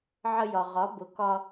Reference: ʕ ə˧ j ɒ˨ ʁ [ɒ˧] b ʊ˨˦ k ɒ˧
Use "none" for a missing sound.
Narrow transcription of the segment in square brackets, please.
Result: ɒ˨˦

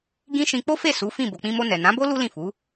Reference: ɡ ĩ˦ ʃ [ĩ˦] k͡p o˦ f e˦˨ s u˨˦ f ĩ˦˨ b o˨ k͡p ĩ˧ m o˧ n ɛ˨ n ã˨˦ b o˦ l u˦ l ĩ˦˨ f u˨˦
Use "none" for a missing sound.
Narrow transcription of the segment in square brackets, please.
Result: ĩ˧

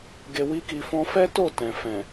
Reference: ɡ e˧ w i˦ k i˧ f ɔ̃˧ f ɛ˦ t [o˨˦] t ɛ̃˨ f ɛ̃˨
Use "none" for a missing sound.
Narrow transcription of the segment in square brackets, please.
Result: o˦˨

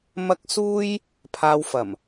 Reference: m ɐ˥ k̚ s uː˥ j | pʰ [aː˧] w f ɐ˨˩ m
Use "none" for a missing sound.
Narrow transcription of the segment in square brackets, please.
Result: aː˧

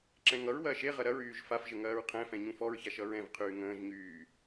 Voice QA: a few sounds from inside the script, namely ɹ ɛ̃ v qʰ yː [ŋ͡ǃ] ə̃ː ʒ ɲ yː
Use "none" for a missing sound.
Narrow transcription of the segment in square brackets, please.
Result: ŋ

